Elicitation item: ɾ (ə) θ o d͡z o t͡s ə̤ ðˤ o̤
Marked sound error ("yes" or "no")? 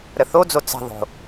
no